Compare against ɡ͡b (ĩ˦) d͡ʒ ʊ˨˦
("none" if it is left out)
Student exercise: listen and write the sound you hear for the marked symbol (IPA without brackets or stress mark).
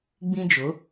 ĩ˦